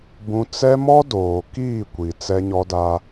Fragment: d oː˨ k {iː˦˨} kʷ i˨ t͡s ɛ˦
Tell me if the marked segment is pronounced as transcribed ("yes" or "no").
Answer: yes